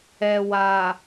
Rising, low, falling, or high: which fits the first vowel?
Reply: low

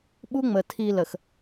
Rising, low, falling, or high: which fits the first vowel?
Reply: high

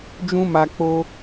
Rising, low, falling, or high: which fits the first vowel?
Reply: high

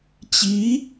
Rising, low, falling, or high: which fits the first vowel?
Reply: rising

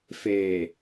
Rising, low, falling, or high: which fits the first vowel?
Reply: low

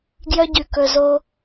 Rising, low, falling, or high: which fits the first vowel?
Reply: high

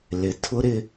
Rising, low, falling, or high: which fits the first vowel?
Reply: low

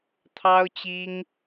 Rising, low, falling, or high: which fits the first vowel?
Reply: high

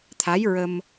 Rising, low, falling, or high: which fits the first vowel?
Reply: rising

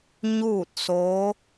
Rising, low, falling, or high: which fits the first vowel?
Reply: falling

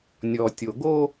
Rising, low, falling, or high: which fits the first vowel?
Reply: low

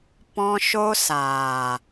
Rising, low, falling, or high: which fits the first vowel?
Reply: high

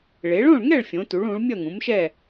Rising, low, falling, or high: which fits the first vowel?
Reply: rising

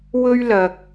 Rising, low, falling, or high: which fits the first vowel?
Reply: high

